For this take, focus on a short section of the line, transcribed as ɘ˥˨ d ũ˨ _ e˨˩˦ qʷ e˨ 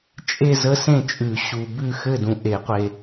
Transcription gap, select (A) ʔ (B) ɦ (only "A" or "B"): A